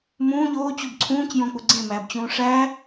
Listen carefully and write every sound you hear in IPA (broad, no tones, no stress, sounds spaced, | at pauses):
m ũː ʎ oː t͡ɕ u b ǀʰ ũː c j õ k͡p u ɡ͡ǀ ẽ m æː b t͡ɕ ũː ʂ æ